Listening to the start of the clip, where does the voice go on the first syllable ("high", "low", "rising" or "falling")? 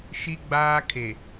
high